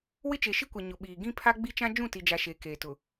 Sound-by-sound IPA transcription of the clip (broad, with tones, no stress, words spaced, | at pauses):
wɪ˦t͡ʃe˨ʃi˦kʷɛ˨ ɲʊ˨ɓiː˨ ɡĩ˦ pʰa˦ ɡ͡bi˦t͡ʃã˦ d͡ʒũ˦˨ti˨d͡ʒa˨ ʃe˨˦keː˨tʊ˨